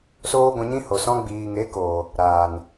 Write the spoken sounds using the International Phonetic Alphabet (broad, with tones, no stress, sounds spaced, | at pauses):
s oː˦ ɡʷ ɛ̃˧ ɲ ĩ˦ h o˨ s ɔ̃˧ ɡ͡b iː˨ ŋ e˨˦ k oː˨ | ɾ aː˨ n